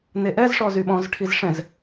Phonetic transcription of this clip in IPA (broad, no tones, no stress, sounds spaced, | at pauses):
n e ʔ ɛ z ʂ ɔ z y ɓ ɔ̃ z ʈʰ i z ʂ ɛ̃ z